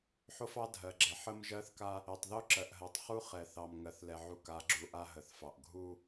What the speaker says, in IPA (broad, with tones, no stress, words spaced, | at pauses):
ħo˦fɑ˦dʱɜ˨ɡ͡ǁɛ˨ ħə˦m ʒɜ˦θka˦ | ɛ˨tˤðo˦ ǁɜ˨ʔɦɜ˨tˤχu˦ χɛ˨θɑ˨mŋɜ˨θ lɛ˨ʕu˨˦ka˨˦ɡ͡ǁu˨ ʔa˦ɦə˨θfɑ˨ʔ ɡʱu˦